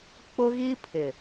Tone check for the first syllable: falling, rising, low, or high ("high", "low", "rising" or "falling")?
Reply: high